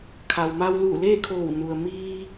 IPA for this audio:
kʰ a˩ w m a˧ w l uː˧˩ l eː˥˨ kʰ oː˧˩ w n u˩ ə̯ m iː˧

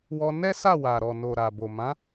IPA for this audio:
w ɔ˧ n ɛ˦ s a˦˨ w a˨ ɾ ɔ˨ n o˨ ɾ a˨ b o˨ m ã˨˦

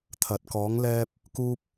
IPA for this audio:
t̪ʰ ɐ˨˥ t̚ k ɔː˨˧ ŋ l ɛː˧ p̚ | k uː˥ p̚

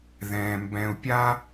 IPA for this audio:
ð ɛ̃ː˩ m b ɛ̃˨ u̯ pʲ a˦

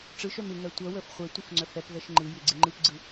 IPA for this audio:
ʈ͡ʂ ɯ ʃ œ m ɪ ŋ ɜ tʷ œ w ə f χʷ ɛ tʷ ɯ f ŋ͡ǀ œ f ɛ p v ɛ ʃ ŋ͡ǃ ɯ j ɪ ɡ͡ǀ ɪ ŋ͡ǃ ɯ p ɡ͡ǀ ɯ

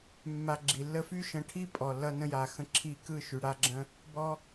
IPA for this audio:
mː a˧ ɡ͡ǁ i˨ lː ə˧ f y˦ ʃ ə̃˨˦ ʈʰ i˦ pʼ ɔ˨ lː ʌ˧ n ə̃˧ j a˨ x ə̃˧ ǁʰ i˧ k ɯ˦˨ ʃ y˨ ɽ a˦ ɡ͡ǁ ə̃˦ | b ɔ˦

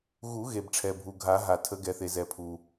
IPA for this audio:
ɣ u˨˩˦ ɣ e˩ b ʈ͡ʂʰ ɛ˩ bʱ u˩ ɡʱ a˨˩˦ ɦ a˩ tʰ ə˨˩˦ ɡ ɛ˩ θ e˩ z ɛ˩ pʰ u˩

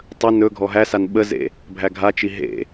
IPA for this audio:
tˤ ə n ɵ ɡʱ ɔ ɦ æ s a n ɓ ə z ḛ | bʱ æ ɡʱ a t͡ʃ i ɦ ḛ

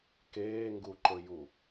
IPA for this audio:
k eː ŋ ɡ u ǃ ɵ j u

